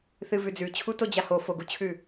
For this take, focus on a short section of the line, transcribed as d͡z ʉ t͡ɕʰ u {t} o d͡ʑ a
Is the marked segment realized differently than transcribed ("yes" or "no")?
no